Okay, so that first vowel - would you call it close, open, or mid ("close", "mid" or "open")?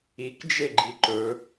close